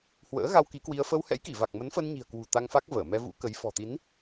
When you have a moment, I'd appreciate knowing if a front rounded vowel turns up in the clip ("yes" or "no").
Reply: no